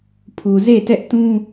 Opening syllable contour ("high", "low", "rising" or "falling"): low